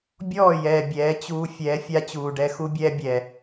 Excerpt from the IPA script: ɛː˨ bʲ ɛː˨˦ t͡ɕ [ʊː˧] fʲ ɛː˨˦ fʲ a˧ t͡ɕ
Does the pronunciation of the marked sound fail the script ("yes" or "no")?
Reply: yes